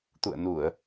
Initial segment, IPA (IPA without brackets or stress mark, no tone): t̪